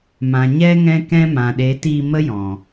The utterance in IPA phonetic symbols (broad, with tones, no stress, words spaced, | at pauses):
mã˨ ɲɛ˦ ŋɛ̃˦kɛ̃˦ mã˨ɗe˨˦tiː˧ mə˦jɔ̃˨